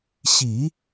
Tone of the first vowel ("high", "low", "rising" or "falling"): low